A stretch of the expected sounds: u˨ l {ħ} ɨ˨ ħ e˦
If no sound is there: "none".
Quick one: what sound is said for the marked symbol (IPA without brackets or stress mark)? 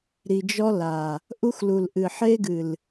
ʔ